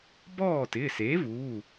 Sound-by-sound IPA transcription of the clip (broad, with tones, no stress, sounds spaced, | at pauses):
b ɔː˥˩ t ɪː˩˧˩ s e˩˥ v uː˩˧˩